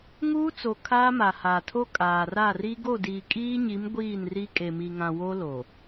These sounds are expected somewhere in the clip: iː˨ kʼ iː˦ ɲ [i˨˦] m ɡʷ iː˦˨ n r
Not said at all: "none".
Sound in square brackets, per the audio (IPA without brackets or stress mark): i˨˦